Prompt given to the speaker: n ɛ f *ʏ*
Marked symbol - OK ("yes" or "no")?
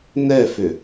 yes